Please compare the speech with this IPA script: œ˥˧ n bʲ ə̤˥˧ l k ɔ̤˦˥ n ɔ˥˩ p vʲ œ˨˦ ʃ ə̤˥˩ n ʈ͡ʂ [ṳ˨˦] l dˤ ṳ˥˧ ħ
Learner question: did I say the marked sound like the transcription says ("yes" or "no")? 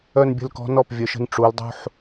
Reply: no